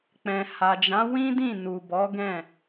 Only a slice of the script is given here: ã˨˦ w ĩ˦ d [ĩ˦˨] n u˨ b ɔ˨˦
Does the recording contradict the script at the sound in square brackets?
no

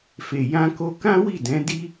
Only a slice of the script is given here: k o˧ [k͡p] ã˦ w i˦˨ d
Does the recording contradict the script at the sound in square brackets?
yes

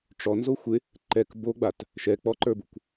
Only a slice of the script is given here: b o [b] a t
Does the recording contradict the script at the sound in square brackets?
yes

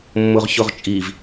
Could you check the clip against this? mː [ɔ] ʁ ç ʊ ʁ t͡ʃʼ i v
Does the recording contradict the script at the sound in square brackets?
yes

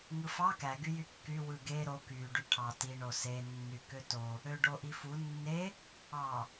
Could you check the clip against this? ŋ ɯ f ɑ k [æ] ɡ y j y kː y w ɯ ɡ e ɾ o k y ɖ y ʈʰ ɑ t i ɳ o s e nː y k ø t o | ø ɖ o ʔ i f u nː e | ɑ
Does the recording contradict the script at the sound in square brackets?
no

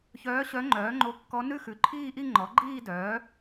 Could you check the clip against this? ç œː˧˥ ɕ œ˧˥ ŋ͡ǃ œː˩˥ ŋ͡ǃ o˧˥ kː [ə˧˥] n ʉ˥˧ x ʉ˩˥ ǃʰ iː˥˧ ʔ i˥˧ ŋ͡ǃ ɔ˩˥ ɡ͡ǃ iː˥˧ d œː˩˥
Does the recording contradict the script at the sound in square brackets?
yes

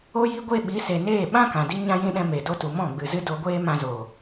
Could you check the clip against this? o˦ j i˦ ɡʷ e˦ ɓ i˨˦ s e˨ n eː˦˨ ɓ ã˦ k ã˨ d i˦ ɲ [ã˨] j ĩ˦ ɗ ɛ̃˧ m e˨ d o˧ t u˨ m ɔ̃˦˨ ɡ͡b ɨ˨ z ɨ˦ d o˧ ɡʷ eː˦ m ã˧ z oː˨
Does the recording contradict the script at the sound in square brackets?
yes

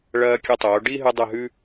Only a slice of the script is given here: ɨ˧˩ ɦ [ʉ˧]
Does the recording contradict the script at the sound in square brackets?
no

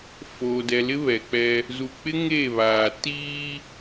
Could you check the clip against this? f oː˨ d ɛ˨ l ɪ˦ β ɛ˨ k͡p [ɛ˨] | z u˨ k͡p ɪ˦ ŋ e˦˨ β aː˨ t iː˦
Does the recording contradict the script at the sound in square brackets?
yes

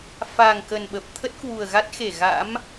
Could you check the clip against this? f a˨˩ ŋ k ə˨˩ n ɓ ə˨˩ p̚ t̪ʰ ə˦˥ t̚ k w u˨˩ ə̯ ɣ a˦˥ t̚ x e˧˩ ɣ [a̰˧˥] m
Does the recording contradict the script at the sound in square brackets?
no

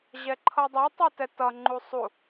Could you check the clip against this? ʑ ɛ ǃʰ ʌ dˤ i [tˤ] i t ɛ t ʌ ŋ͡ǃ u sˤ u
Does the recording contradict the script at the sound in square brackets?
no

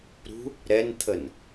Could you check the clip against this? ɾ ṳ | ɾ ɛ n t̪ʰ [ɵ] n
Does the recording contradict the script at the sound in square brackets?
yes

